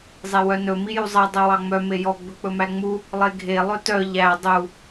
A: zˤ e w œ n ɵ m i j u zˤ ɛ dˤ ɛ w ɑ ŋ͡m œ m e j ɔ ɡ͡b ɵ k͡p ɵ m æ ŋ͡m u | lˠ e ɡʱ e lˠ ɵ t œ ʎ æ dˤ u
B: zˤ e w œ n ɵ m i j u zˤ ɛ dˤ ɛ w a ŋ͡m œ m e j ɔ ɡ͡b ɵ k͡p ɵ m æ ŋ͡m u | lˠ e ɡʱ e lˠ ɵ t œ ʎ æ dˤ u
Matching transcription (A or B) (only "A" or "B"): A